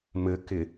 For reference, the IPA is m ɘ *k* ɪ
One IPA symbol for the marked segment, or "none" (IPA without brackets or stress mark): k